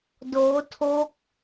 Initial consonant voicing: voiced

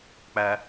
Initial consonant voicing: voiceless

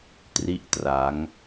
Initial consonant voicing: voiceless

